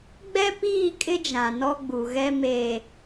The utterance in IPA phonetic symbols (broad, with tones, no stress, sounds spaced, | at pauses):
ɡ͡b ɛ˦ p iː˦˨ kʼ ɪ˦ d͡ʒ ã˨ n ɔ˦ ɡ͡b u˨ ɣ ɛ˦ m eː˨